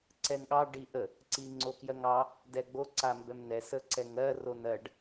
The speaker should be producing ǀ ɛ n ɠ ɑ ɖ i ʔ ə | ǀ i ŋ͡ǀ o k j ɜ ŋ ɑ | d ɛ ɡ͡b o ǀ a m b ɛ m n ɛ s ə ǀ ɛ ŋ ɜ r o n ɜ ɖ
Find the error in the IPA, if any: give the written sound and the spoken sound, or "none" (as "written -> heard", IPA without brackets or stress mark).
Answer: none